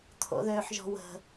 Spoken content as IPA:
t̪ʰ o̰ ð øː ħ ʒ ɔ̤ w ə̤

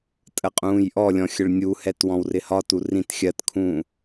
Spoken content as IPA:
tʼ ə qʼ ũː j ʔ ɔ lʲ ɔ̃ xʲ ə ɭ nʲ u h ɛ t w ɔ̃ w r ɪ h ɒ t u r ĩ t xʲ ɜ t kʰ ũː

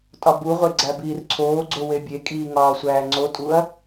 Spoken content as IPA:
tʼ ɒ b u ʁʷ e ɡ͡ǀ æ b iː r ǀʰ oː ɡ͡ǀ o w e bʲ e kʼ iː ŋ ɒː sʷ æː ŋ͡ǀ o tʼ u ɐ̯

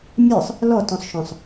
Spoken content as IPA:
mʲ ə˞ sˤ | l ɔ t ɔ̃ sˤ ʃ ɔ̃ sˤ

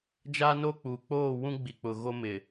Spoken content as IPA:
d͡ʒ a˦ n o˦ k͡p uː˨ k͡p oː˦˨ w ũ˦ ɡ͡b i˨ k͡p ʊ˨ ɣ o˦ m ɪ˨

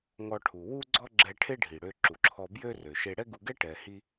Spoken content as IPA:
ŋ ɔ˧ ʈʰ u˩ w u˥ ɡ͡ǀ ɔ˥ ɡ͡ǁ ɛ˧ ʈʰ e˥ ɖʱ i˩ ɽ ø˧ ǁ u˩ ǁʰ ɔ˧ b j ø˥ r ø˩ ʃ e˧ ɽ ɛ˥ ɡ u˧ ɡ ɛ˥ ʈ ɛ˩ h i˧

